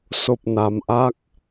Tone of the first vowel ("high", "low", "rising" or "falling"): low